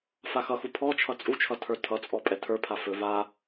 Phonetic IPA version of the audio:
faxʌxu pʰɔt͡ʃʰʌ t͡sʼut͡ʃʰʌ tʰə˞tʰʌt͡sʼɔ pʼɛtʰə˞pʰa fɵ va

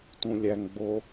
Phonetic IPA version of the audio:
tũlʲæŋɡ͡bo

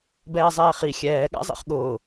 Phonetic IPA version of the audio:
bɛːzˤɛːχi xʲɛː ɠa̰zˤḭχɠʊː

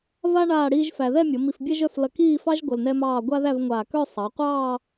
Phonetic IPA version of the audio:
va˥ ɳaː˥˧ɽiː˥ʒfæ˧ ðɛ˥˧mʲʌ˩˧ mi˧fbʲɛ˥ʒœ˥˧f lʌ˧kiː˥˧fɑ˥ʒ ɡʷʌ˧lnɛ˥mɑː˥˧ ɡʷa˥ðæ˥˧vŋʷaː˧˩k œ˥˧ sˤɑ˩˧qʷɑː˥˧

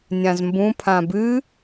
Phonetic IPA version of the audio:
nʲãzmbũ pʰãbɨ

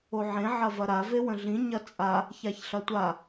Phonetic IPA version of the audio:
oʕẽ ʕɐvɐɾa vewə̃ɮĩ ɲɐt͡sʼa | çaçɬɐtʷa

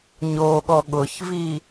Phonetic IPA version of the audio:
ɲoɠɔ ɠʊçvi

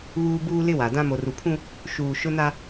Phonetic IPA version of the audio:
βuː˦ buː˦lɪ˦wa˨dã˦ mo˨ru˨pʰũ˦ | ʃuː˨ʃʊ˦na˦

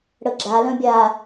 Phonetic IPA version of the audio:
ɽəɡ͡ǁa lœ̃bʲa

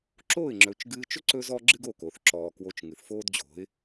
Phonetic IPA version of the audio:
ǁoː˥˩ɪ̯ŋ͡ǁɵ˩˥t͡ʃɡɨː˧t͡ʃɵ˥ ǀɵ˥zɔ˥ ɡ͡ǁɨ˥ɡo˥˩ko˩θ ǁɔː˩ kwo˧t͡ʃŋɨ˩θfoː˥dd͡ʑo̤˩˥ɪ̯

